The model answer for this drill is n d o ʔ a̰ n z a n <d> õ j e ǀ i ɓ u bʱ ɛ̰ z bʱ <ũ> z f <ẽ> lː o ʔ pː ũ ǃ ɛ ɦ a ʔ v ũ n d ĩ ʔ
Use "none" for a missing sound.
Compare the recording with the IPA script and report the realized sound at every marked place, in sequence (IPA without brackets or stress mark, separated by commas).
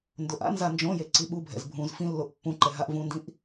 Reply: d͡ʒ, ũ, ĩ